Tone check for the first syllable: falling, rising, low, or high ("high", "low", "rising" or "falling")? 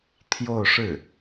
falling